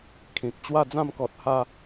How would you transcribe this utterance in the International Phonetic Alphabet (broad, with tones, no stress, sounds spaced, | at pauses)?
kʰ ĩ˨ k̚ t͡ɕ w a˥˧ d͡z ã˥˧ m k ɔ˨ t̚ h a˧